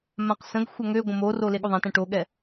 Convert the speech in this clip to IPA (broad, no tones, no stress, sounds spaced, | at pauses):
m ã q s ə̃ ɡ xʷ ɐ ŋ ø ɡʷ ə̃ m o r o l e ɠ o ðˤ ã t ɛ̃ ʈ o ɠ ɛ